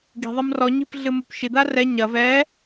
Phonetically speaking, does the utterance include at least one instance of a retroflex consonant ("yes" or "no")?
no